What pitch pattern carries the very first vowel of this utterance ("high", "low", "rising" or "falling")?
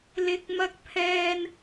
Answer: high